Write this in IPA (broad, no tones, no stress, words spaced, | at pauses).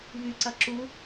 βyǀɐ ǁu